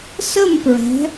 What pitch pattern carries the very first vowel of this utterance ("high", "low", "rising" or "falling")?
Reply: falling